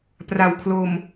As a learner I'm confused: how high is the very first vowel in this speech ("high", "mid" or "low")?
low